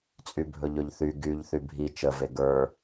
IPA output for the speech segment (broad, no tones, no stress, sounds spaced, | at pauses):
t͡sʼ y bʱ ɵ ʎ ɵ ʎ θ y ɡ y ʎ θ y bʱ i t͡ʃ ə v e ɡ ə˞